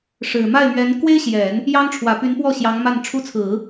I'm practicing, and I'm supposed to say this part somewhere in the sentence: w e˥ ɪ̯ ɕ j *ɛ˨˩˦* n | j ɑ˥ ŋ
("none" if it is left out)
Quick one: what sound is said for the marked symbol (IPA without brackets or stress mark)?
ɛ˨˩˦